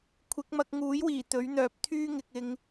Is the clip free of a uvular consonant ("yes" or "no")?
yes